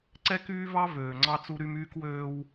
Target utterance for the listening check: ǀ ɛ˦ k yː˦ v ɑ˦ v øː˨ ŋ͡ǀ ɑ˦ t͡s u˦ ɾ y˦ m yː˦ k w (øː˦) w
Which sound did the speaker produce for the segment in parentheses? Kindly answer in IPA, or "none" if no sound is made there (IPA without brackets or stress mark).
øː˦